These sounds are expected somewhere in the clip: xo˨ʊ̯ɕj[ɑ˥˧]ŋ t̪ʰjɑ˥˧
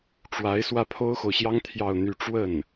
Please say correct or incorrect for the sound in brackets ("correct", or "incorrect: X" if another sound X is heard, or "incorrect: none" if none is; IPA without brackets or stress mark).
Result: incorrect: ɑ˥